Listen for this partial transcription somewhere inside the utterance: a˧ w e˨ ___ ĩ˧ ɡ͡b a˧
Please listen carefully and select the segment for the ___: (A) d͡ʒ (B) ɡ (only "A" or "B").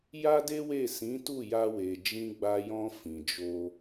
A